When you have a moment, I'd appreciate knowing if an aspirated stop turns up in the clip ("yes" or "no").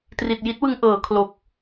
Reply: yes